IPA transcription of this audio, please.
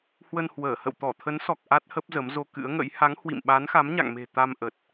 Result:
h w ə˧ n h w əː˧˩ h ə̰˧˨ w t̪ ɔ˧˩ t̪ʰ ə˨˦ n s ɔ˨˩ k̚ ʔ a˦˥ t̚ h ə˦˥ p̚ z ə˨˦ m z o˧ k ɨ̰˧˥ ə̯ ŋ ə̰˧˥ j h a˨˦ ŋ h w ḭ˧˨ m ɓ a˨˦ n x a˨˦ m ɲ a̰˧˨ ŋ m e̤˨˩ t̪ a˧ m ʔ ə˨˩ t̚

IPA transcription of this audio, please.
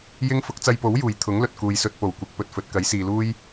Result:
j ɪ˥ ŋ f ʊ˨˥ k̚ t͡s ɐ˧ j p o˨˥ w j uː˨˩ j t̪ʰ ʊ˨˥ ŋ l ɵ˨ t̚ k uː˨ j s ɵ˧ t̚ p o˨˩ w kʷ ɪ˨˥ k̚ p ɵ˨ t̚ f ɵ˨ t̚ k ɐ˨˥ j s iː˨ l uː˥ j

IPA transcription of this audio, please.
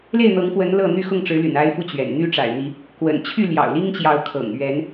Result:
l e˥˨ ɪ̯ n̪ ɤ˨˦ ŋ f w ə˨˦ n l ɤ˥˨ n̪ y˥˨ x ʊ˥˨ ŋ ʈ͡ʂ ɻ̩˨˦ l y̰˨˩ n a˦ ɪ̯ f u˦ t͡ɕ ɥ ɛ̰˨˩ n n̪ y˦ ʈ͡ʂ a̰˨˩ ɪ̯ n̪ i˨˦ | k w ə̰˨˩ n t͡ɕʰ y˥˨ l j ɑ̰˨˩ ʊ̯ l i˦ ŋ t͡ɕ j ɑ˨˦ ʊ̯ kʰ ɤ̰˨˩ ŋ ɥ ɛ˨˦ n

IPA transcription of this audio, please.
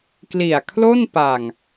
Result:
k l i˨˩ a̯ kʰ l o˥˩ n p a˨˩ ŋ

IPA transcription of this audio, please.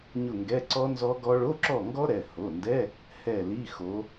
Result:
ɲ ʊ˦˨ ŋ ɡ ɛ˧˥˧ ǀ ɔ˦˥ n z ɔ˦˥ ɡ ɔ˦˥ ɭ o˧˥˧ ǁ ɔ˦˨ ŋ ɡ ɔ˦˥ ɾ ɛ˩˧˩ h o˩˧˩ n d ɛ˧˥˧ | h ɛ˦˨ l i˧˥˧ x o˨˦

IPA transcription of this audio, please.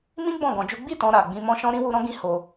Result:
m ĩ˦ ɡ͡b ɔ̃˦˨ ɡ ɔ̃˧ d͡ʒ u˦ ɡ͡b i˦˨ t ɔ̃˧ ɾ a˨ ɡ͡b ĩ˧ m ɔ̃˦ ʃ ɔ̃˦ ɾ ĩ˦ w u˧ ɾ ɔ̃˦ ɡ ĩ˧ h o˧

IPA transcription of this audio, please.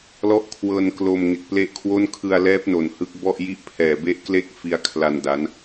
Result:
l ɔ˦˥ ʔ kʰ w ɤː˧ n k l o˧ m ŋ e˨˩ k̚ p l e˦˥ ʔ kʰ w o˥˩ n kʰ ɯ˧ a̯ l ɛː˦˥ p̚ n o˨˩ n h ɯ˦˥ k̚ b ɔ˥˩ ʔ j i˥˩ ʔ pʰ ɛː˨˩ b e˥˩ ʔ k l e˥˩ k̚ f i˦˥ a̯ kʰ l a˧ n d a˦˥ n

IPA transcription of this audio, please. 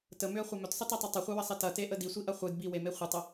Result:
t ə m ʏ ə̯ χʷ ɐ m ʏ t sˤ ə t e tˤ ɪ tˤ ɪ χʷ e w ə sˤ ɪ t ɐ t e ʔ ə d i sʷ i ʔ ɐ χʷ ɨ d b i w e m e χʷ ɪ tˤ ə

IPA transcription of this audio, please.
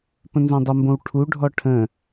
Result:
p ə̃ n z õ dˤ ə m b õ w ʈʰ u ɖʱ ɔ ʈʰ ə̃

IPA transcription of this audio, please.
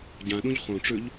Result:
ɟ ã ɗ ũ ʎ χ õ ʈ͡ʂ ʉ ʎ

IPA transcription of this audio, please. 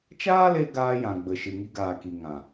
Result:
t͡ʃ aː˦ l e˧ ɡ aː˧ j ã˨ ɡ͡b ə˨ ʃ ɨ˨ ŋ i˧ ɡ aː˨ k i˨ ŋ ã˨

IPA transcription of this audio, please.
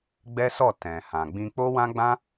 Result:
ɡ͡b ɛ˦ s ɔ˦˨ t ɛ̃˨ h ã˨ ɡ͡b ĩ˧ k͡p o˦ w ã˦ ɡ͡b ã˦

